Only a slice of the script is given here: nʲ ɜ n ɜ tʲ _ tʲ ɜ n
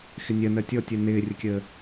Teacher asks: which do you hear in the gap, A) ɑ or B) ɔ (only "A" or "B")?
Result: B